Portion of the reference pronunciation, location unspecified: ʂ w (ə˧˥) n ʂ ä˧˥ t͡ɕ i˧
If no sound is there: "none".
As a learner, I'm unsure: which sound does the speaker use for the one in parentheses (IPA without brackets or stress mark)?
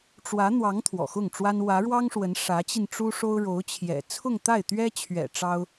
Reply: ə˧˥